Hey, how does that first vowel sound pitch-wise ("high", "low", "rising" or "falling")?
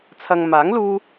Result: low